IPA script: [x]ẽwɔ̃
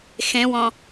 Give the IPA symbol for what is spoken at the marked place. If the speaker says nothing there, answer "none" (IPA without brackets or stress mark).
x